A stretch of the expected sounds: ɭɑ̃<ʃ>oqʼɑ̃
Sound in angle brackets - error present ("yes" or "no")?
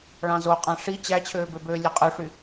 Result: yes